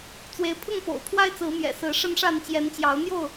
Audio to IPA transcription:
t͡s w e˨˦ ɪ̯ pʰ ʊ˥˨ ŋ p o̰˨˩ ʊ̯ pʰ w a˦ ɪ̯ t͡s ɹ̩˨˦ m j ɛ̰˨˩ s ɹ̩˨˦ ʂ ə˦ n ʂ a˥˨ n t͡ɕ j ɛ˨˦ n t͡ɕ j ɑ˨˦ ʊ̯ n̪ j o˥˨ ʊ̯

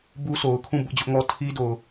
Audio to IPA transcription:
b u˦ sʰ o˨ ʊ̯ kʰ ũ˦˨ b ʊ˦ ʔ d͡ʑ ʊ˦ ʔ ŋ ɔ˦ tʰ i˦ d o˨ ʊ̯

